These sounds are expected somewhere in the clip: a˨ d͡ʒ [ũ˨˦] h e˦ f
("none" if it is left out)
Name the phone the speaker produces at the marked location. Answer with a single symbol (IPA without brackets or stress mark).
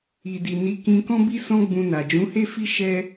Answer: ũ˨˦